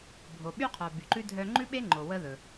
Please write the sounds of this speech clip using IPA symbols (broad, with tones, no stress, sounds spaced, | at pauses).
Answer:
bʱ o˩ ɓ y˧ qʰ œ˩ b y˩ ǃ ʉ˥ dʱ œ˧ ŋ͡ǃ ʉ˥ ɓ e˥ ŋ͡ǃ o˩ w ə˥ ð ɵ˩